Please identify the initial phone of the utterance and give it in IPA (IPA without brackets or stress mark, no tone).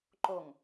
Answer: ǃ